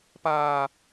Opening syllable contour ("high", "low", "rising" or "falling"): high